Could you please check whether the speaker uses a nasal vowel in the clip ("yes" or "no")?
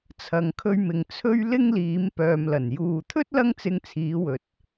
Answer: no